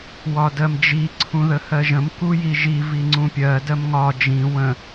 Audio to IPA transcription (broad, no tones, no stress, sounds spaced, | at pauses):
w ɒ d ɜ m d͡ʒ i ǀʰ ũ ð ə h ɜ ʒ ə̃ m k u j i ʒ i v i ŋ͡ǀ ũ pʲ ɜ d ɜ m ŋ ɒ d͡ʒ ĩ w ə̃